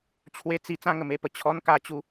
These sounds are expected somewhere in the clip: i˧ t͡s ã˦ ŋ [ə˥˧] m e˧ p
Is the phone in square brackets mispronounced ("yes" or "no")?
yes